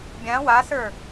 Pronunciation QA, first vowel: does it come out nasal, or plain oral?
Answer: nasal